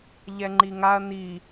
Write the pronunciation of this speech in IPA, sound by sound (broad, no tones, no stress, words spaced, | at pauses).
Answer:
ʎɛŋ͡ǃiŋaɐ̯ n̪i